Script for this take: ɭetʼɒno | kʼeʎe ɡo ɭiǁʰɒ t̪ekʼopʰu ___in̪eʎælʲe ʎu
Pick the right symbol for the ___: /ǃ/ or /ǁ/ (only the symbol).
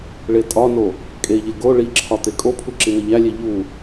ǁ